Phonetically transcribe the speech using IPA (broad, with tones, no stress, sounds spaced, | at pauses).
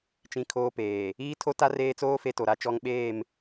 t͡ʃ ĩ˦ kʰ oː˦ p eː˨ | iː˦ tʰ o˦ t a˦ r eː˦ t͡s oː˦ f e˦ t o˨ ɾ a˦ t͡ʃ ɔ˦ ŋ ɓ eː˦˨ m